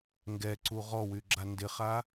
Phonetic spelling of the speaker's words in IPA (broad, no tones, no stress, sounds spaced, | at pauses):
ŋ ɡ ɛ ǀ u ʁ ɔ w y ɡ͡ǁ a n d ɪ χ a